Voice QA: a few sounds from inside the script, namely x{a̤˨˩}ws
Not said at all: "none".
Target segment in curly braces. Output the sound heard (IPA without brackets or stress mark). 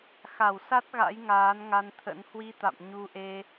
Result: a˧˩